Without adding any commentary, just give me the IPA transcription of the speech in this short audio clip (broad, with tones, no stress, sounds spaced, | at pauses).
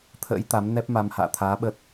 t̪ʰ ə̰ː˧˥ j t̪ a˨˦ m n ɛ˦˥ p̚ m a˧ m h a̰ː˧˨ t̪ʰ aː˨˦ ɓ ə˦˥ t̚